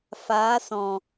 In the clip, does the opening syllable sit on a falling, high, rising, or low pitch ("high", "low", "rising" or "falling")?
rising